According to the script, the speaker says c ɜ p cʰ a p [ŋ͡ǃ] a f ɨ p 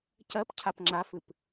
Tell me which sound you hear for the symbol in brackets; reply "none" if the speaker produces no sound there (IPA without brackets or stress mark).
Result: ŋ͡ǁ